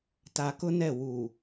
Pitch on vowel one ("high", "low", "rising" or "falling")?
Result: low